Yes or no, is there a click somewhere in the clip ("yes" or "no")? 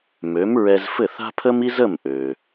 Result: no